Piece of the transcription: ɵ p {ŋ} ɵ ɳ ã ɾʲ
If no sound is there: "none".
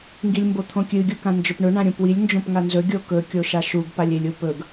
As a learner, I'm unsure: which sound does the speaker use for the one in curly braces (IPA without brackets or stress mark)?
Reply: ɳ